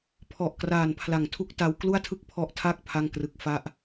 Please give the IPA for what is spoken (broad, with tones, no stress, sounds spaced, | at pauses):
pʰ ɔ˨˩ ʔ k r aː˨˩ n pʰ l a˨˩ ŋ tʰ u˥˩ k̚ t a˦˥ w k l u˥˩ a̯ tʰ ɯ˥˩ k̚ pʰ ɔ˦˥ ʔ tʰ a˥˩ k̚ pʰ a˥˩ ŋ k r ɯ˦˥ k̚ f a˥˩ ʔ